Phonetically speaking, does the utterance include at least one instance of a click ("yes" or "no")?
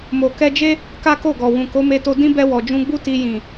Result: no